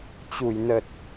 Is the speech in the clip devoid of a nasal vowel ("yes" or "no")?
yes